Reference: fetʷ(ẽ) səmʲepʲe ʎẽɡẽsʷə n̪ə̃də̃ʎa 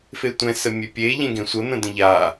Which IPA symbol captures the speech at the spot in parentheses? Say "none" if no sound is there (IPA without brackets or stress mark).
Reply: ɛ̃